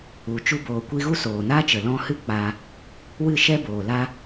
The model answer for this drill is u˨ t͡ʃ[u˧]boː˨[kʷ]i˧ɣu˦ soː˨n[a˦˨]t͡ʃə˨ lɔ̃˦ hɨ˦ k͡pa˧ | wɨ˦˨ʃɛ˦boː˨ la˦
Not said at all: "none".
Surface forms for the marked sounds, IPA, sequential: u˧, kʷ, a˦

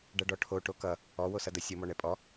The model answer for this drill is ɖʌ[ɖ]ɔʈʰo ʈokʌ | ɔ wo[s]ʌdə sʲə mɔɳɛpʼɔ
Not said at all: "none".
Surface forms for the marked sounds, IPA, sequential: ɖ, s

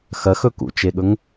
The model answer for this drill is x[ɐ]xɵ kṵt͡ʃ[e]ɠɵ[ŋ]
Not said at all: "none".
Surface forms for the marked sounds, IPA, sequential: ɐ, e, ŋ

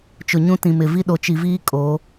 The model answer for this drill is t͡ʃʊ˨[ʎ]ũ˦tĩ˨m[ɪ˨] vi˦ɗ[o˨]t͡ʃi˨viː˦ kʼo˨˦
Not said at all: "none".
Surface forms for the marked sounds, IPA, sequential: ɲ, ɪ˨, o˨

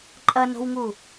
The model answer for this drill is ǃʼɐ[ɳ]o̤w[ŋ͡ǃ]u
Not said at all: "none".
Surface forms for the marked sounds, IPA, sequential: n, ŋ

